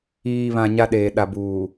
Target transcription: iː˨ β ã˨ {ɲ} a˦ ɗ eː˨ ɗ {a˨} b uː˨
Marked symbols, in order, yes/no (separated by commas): yes, yes